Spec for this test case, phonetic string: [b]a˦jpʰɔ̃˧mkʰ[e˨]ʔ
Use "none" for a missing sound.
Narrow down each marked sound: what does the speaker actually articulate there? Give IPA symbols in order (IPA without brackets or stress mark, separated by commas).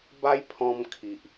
b, i˨